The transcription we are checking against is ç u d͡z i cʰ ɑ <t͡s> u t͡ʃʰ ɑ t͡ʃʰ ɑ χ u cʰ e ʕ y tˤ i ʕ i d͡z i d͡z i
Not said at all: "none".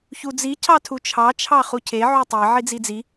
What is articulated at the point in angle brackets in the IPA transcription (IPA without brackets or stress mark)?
tʰ